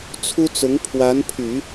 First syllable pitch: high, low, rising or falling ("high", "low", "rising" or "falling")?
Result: high